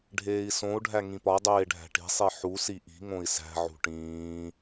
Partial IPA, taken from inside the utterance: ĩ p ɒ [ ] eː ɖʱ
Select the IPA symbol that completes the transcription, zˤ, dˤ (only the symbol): dˤ